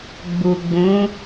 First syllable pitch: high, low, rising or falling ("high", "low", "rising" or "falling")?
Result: low